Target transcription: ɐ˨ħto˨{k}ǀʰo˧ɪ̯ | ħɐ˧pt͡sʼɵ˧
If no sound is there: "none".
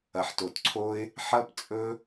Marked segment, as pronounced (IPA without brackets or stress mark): t